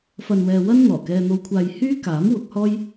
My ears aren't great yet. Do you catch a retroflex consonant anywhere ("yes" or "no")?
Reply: no